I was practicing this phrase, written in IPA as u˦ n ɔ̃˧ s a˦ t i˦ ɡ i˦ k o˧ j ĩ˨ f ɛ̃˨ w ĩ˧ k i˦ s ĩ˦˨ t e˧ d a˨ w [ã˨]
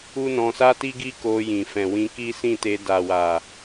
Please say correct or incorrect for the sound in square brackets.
incorrect